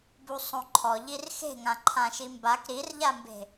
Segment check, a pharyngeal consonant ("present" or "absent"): absent